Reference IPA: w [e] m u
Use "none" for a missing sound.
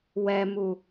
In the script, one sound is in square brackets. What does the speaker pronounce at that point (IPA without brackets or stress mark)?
ɛ